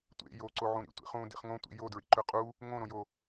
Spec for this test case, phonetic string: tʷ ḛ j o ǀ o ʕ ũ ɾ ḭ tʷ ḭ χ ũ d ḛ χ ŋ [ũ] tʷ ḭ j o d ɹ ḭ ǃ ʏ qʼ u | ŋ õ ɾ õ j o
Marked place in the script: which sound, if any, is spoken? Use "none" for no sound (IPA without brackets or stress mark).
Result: õ